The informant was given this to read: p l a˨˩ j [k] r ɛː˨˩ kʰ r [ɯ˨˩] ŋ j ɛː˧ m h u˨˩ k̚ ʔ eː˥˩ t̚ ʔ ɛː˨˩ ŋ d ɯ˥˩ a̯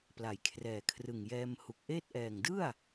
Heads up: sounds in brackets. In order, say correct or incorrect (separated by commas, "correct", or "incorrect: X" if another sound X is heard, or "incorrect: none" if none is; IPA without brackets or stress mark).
incorrect: kʰ, correct